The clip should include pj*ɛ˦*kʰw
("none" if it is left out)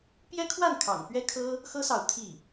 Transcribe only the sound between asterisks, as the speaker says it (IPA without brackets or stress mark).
ɛ˥